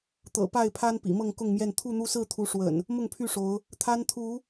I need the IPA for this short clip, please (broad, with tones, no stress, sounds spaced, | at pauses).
t̪ ɤ̰˨˩ p a˥˨ ɪ̯ pʰ a˦ n p ḭ˨˩ m ɤ˥˨ ŋ k ʊ˥˨ ŋ m j ɛ˥˨ n t̪ʰ u˥˨ n̪ u˦ s ɹ̩˥˨ t̪ʰ u˨˦ ʂ w ə̰˨˩ n | m ʊ˥˨ ŋ pʰ y˥˨ ʂ o˨˦ ʊ̯ | t̪ʰ a˦ n t̪ʰ u˨˦